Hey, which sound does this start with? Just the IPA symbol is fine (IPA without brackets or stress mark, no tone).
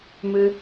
m